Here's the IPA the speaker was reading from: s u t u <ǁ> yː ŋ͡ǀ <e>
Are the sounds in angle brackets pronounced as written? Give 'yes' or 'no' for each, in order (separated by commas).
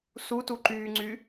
no, no